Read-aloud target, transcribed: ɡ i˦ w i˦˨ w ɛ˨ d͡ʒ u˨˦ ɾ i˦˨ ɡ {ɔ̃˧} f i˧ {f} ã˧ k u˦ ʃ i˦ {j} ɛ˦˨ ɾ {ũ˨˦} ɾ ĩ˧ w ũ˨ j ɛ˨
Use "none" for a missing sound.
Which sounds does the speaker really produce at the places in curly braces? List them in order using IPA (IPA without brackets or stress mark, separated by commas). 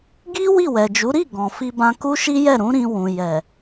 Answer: ɔ̃˨, b, j, ũ˨˦